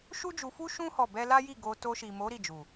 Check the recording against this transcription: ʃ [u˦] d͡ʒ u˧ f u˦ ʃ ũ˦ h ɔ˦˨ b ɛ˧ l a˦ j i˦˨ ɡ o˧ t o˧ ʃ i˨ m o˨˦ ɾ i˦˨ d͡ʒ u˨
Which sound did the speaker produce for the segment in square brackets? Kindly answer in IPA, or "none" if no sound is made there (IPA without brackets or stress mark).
u˦